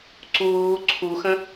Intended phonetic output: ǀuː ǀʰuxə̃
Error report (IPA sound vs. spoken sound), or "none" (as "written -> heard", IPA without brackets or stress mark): none